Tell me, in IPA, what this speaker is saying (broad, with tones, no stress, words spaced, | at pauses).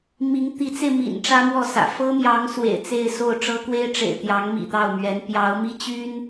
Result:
mi˧˥ŋt̪i˧˥t͡se˧ɪ̯mḭ˨˩n ʈ͡ʂä˥mwɔ˥˩sä̰˨˩ fɤ˥mjɑ˧˥ŋ swḛ˨˩ɪ̯t͡se˥˧ɪ̯so˥˩ʊ̯ ʈ͡ʂɤ˥kwe˥ɪ̯ʈ͡ʂḛ˨˩ɪ̯ t̪jɑ˧˥ŋmḭ˨˩t̪ɑ˥˩ʊ̯mɥɛ˧˥n pjɑ˧˥ʊ̯mi˥t͡ɕy˥n